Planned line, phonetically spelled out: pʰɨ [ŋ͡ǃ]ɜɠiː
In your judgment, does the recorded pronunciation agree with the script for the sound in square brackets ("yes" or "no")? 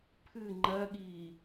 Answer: yes